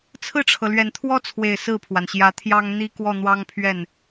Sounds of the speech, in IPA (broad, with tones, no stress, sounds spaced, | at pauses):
t͡sʰ ɹ̩˥˩ ʈ͡ʂʰ ɤ˩ l ɥ ɛ˨˩ n t̪ʰ w ɔ˥ t͡sʰ w e˨˩ ɪ̯ s ɹ̩˥˩ pʰ w a˩ n ɕ j ä˧˥ t̪ʰ j ɑ˥ ŋ n̪ i˥ k w ɔ˥˩ n̪ w ɑ˥ ŋ pʰ ɥ ɛ˥˩ n